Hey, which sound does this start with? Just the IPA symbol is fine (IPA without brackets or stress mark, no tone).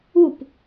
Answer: u